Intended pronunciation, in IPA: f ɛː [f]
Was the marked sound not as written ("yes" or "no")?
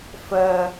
yes